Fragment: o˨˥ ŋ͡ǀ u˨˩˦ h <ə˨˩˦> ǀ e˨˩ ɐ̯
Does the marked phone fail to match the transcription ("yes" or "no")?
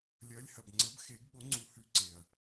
yes